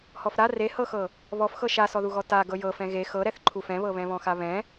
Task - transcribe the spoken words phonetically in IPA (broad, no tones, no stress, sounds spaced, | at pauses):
h ɔ f ɾ a r e h ɤ x ɤ | β ɔ f x ɤ ʃ a s ɔ ð u ɣ ɔ t a ɡ ɤ j ɤ f ɛ̃ ɣ e x ɤ ɾ ɛ θ ǃʰ u f ɛ̃ β ɤ β ɛ̃ β ɔ̃ x a β ɛ̃